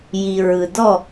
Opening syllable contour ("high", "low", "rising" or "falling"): low